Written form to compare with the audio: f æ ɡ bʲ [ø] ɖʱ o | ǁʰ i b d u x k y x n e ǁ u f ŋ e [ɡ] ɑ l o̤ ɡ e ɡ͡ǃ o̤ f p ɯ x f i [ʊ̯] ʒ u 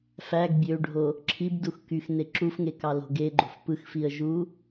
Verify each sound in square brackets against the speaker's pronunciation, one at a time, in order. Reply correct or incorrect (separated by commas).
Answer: correct, incorrect, incorrect